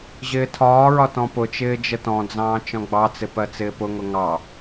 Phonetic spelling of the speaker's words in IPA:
ʑ ɪː tʰ ɒː ɹ ɒ t ɔ̃ p ʊ t͡ʃ ɪː d͡ʒ ə t ɔ̃ d͡z ɑ̃ː t͡ʃ ɔ̃ ɡ͡b ɑ t͡s ɪ p ɜ t͡s ɪː p ʊ ŋ ʊ ŋ ɑ

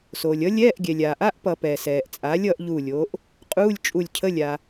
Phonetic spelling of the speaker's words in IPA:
s oː˩ lʲ ʌ˩˥ lʲ ɛː˧˥˧ ʔ ɡʲ ɛ˩ lʲ aː˩ ʔ a˧˥˧ ʔ p ʌ˧˩˧ p ɛː˩ s ɛː˩ ʔ t͡sʼ aː˩˥ lʲ ʌː˩˥ ʔ ʎ uː˧˩ lʲ oː˩˥ ʔ | qʼ uː˧˥˧ lʲ t͡ʃʼ u˧˩ lʲ cʰ ə˧˥˧ lʲ a˩

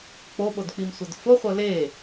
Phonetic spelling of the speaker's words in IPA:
k͡p o ɓ o d k͡p i m sʷ ɤ d f o χʷ ɤ l e

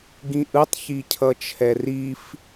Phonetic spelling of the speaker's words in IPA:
ɡ ĩ ʔ ɯ tˤ ç i cʰ ʌ t͡ʃʰ ɛ r i f

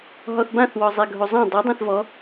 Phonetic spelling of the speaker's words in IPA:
ɦ ɔ θ b ã θ w ɔ zˤ e ɡʱ o zˤ ã dˤ e dˤ ã θ v ɔ

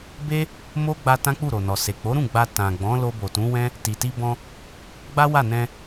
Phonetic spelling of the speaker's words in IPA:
b e˦ | m o˦ ɡ͡b a˧ t ã˦ k͡p u˦˨ ɾ o˨ n ɔ˨ s e˨ k͡p o˨˦ ɾ ũ˦˨ ɡ͡b a˧ t ã˨ ɡ͡b ɔ̃˨˦ l o˧ b o˨ t ũ˨˦ w ɛ̃˦ | t i˨ t i˧ b ɔ̃˧ | ɡ͡b a˦ w a˦˨ n ɛ̃˧

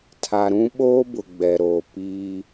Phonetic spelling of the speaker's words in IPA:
tʰ a˨ ɾ ũ˦ ɓ oː˦ b ʊ˨ ɡ͡b ɛ˨ ɾ oː˨ p iː˦

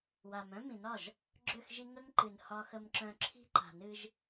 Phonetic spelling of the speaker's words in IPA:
w a˨ m œ̃˦ m ĩ˨ n ɒ˦˨ ʒ | ɡ͡ǁ ø˦˨ x ʒ i˦ ŋ ə˦ ŋ ǃ ɨ˨ n h ɒ˦ x ə˦ m ǁ œ̃˦ ǁʰ i̤˦ ǃ a̤˨ n ɨ˦ ʒ

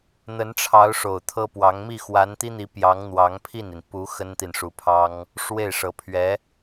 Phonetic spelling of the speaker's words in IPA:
n̪ ə˧˥ n ʈ͡ʂʰ ɑ˧˥ ʊ̯ ʂ o˨˩ ʊ̯ t̪ʰ ɤ˥ p w ɑ˧˥ ŋ m i˥˩ x w a˧˥ n t̪ i˥ n̪ i˧˥ p j ɑ˧˥ ŋ n̪ w ɑ˧˥ ŋ pʰ i˥˩ n i˩ n p u˧˥ x ə˥ n t̪ i˨ n ʂ u˧˥ pʰ ɑ˥ ŋ | ʂ w e˥˩ ɪ̯ ʂ ɤ˧˥ pʰ ɥ ɛ˧˥

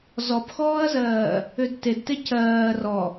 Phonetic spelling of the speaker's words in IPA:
z ɔ p x ɔː ɐ̯ z ɜː | ʏ d t e d t e c ɜː r ɔ

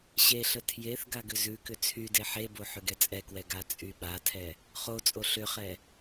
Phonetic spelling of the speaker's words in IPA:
ɕ e ɬ ə tʰ j e θ ɡ a ɡ ʏ z ʉ k ʏ t͡sʰ y d e ħ e b o ħ ʏ ɡ ɛ t͡sʼ ɛ k w ɛ ɡ a t͡sʼ y ɓ a tʰ ɛ | χ o t͡sʼ o ɬ ʏ χ ɛ

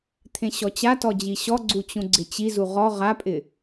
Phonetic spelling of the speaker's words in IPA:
t̪ʰ ẽ ɕ ɔ t͡ɕ a t ɔ d͡ʑ i ɕ ɔ ɡ͡ǀ u t͡ɕ ũ ɡ͡ǀ ɪ t͡ɕ i z u ʁ ɔ ʁ a pʼ ɪ

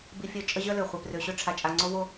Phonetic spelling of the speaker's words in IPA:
b i˧ fʲ œ˧ t͡ʃʼ ə˥ ʑ œ˥ l ø˩ χʷ ɛ˧ p r ø˧ ɕ ø˥ ʈ͡ʂʰ a˧ t͡ʃʼ a˧ ŋ͡ǀ o˥ v o˥

